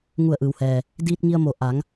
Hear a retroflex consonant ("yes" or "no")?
no